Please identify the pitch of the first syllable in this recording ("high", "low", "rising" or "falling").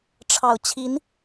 low